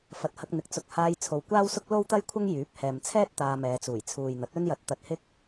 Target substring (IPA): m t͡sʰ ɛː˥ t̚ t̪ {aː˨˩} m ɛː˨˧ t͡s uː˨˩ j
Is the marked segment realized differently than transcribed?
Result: yes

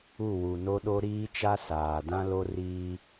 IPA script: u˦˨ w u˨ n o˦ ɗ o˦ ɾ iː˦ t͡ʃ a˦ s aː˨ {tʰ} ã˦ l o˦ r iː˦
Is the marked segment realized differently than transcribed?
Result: yes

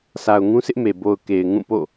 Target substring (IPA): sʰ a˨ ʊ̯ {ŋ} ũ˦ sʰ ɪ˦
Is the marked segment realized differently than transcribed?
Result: no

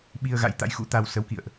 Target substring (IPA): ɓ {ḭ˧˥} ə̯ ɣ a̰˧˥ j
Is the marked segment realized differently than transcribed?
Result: yes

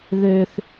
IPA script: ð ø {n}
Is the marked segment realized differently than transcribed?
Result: yes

